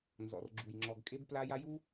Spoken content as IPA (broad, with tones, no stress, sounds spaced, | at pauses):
n z ɔ̰˨ r ɡ͡ǁ u˨ j ŋ͡ǁ ɔ˨ ɡ kʼ e˦ b p l a˦ j a˦ j u˦